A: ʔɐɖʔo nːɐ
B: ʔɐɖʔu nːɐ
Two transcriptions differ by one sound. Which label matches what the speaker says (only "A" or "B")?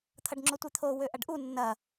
B